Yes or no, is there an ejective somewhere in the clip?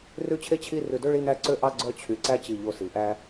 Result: no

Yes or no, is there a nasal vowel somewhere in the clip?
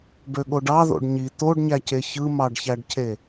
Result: no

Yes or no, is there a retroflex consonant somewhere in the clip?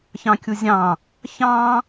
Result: no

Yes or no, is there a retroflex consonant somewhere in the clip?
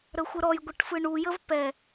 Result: yes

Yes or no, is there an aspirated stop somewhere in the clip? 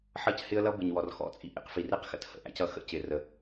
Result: no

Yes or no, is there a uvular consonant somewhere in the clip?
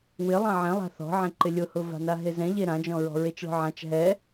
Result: no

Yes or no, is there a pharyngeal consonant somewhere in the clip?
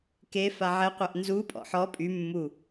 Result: yes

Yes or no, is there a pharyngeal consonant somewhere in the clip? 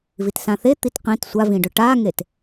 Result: no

